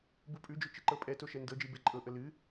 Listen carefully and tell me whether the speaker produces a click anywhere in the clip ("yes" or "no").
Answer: yes